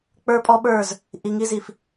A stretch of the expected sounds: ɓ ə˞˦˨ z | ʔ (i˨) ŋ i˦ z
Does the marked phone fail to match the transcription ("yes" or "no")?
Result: no